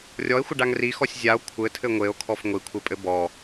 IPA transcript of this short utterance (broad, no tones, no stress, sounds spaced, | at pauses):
rʲ ɔ e̯ xʷ ɘ ɖ a ŋ r i x ɔ sʲ zʲ a o̯ kʷʰ ɘ tʰ ɘ ŋʷ e o̯ kʰ ɔ f ŋʷ i kʷʰ e pʼ ɘ b ɔ